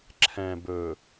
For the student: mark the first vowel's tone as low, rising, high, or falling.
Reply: low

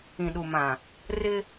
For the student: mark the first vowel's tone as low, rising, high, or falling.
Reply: low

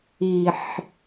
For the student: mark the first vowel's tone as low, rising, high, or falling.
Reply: low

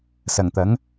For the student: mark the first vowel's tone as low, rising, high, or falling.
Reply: low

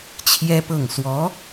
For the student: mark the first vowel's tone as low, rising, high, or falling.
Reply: high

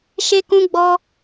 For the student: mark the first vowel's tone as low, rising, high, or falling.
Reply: high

